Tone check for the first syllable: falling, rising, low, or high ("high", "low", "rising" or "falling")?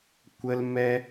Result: high